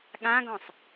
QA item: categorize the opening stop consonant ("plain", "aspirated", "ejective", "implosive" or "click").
implosive